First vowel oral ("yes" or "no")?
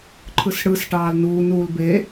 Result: yes